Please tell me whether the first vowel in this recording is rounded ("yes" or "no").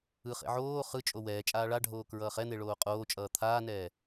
no